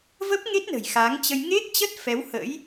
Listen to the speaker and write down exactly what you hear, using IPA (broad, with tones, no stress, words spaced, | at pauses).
və˦˥p̚ŋe˦˥t̚ nə̤˨˩jxa˨˦ŋt͡ɕə˧j ŋe˦˥k̚t͡ɕə˦˥t̚ fɛ˨˦whə̰˧˥j